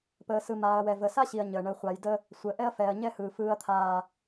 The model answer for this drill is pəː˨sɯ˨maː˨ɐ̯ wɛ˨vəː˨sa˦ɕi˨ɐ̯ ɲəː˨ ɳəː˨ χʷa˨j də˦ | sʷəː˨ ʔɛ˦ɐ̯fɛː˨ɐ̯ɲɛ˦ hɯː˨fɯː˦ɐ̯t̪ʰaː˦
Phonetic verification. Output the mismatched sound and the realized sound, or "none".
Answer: none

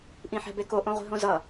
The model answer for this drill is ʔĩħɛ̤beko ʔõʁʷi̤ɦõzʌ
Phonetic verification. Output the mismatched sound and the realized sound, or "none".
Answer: none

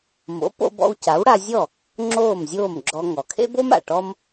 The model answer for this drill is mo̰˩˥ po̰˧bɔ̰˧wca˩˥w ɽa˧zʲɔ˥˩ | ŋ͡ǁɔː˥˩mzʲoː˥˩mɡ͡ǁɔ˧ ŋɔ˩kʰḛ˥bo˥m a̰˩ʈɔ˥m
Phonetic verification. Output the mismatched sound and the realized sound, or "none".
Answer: ɔː˥˩ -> oː˥˩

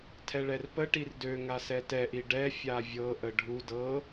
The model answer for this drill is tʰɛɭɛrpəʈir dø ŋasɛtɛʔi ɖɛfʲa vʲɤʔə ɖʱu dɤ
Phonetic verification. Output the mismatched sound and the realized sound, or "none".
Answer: none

